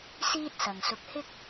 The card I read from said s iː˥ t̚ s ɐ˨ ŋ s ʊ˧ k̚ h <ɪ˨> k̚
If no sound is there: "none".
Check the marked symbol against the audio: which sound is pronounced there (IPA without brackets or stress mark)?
ɪ˥